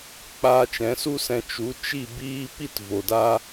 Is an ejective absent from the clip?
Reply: yes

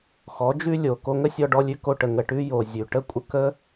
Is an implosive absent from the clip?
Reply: yes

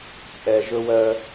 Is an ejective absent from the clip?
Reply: no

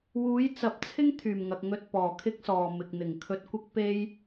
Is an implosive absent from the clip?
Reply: yes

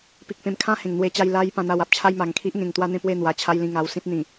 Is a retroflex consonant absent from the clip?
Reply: yes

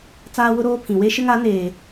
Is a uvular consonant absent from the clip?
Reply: yes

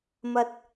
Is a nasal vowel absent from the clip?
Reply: yes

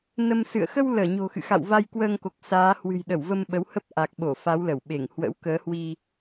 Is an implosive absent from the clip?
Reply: no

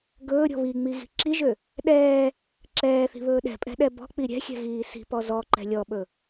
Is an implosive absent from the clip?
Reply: no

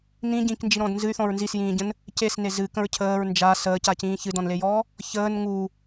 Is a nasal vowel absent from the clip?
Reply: no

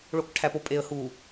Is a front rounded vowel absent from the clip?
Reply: yes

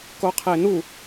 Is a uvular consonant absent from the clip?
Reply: no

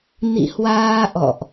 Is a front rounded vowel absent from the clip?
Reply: yes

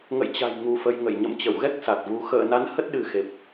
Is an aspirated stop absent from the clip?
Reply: yes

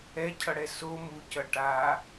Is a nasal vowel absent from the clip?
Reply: yes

